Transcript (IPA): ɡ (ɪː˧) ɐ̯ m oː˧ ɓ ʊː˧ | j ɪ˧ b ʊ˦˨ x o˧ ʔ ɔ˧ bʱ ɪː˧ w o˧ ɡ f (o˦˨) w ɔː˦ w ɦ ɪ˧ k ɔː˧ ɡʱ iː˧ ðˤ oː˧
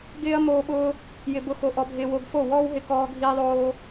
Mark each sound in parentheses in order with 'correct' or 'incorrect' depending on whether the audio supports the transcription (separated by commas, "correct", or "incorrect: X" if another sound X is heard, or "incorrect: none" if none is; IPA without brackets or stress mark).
incorrect: ɪː˦, correct